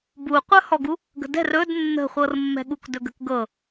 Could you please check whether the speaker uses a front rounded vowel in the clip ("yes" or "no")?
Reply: yes